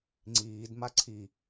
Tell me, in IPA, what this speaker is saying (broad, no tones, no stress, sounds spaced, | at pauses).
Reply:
ŋ͡ǀ iː d m a ǀʰ i